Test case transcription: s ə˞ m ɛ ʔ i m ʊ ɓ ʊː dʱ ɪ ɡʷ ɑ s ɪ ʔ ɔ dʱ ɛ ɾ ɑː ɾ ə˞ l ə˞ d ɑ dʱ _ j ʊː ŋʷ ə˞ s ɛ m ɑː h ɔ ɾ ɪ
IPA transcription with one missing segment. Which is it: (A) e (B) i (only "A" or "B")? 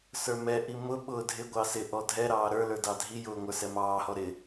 B